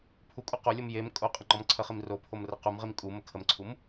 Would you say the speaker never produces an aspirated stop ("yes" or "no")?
no